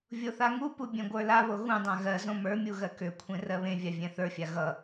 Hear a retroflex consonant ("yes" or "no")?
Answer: no